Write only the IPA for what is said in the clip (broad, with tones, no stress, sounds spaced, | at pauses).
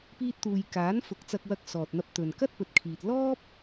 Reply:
p iː˧ t̚ t̪ uː˨ j k aː˨˥ n f ʊ˨˥ k̚ t͡s ɐ˧ k̚ w ɐ˧ k̚ s ɔː˨ t̚ n̪ ɐ˧ p̚ t̪ ɵ˨ n k ɐ˥ t̚ p ɵ˨ t̚ kʰ iː˨ t̚ l ɔː˥ p̚